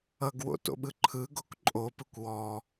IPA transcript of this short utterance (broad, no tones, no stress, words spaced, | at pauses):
ʌɡwo̰to̰ɓɯ ǃʰɯɡok ǃʼopɯkʷ wɔ